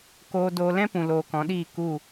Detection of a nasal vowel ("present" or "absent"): present